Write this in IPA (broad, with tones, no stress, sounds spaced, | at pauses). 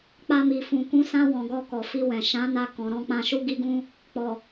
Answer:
k͡p a˧ m i˨ f ũ˨ k ũ˨˦ s ã˧ w ɔ̃˨ ɡ ɔ˧ k ɔ˨ f i˧ w ɛ̃˨ ʃ ã˨˦ n a˧ k ɔ̃˨ ɾ ɔ̃˧ k͡p ã˧ ʃ u˦ ɡ i˦ ɡ ũ˦ | k͡p ɔ˨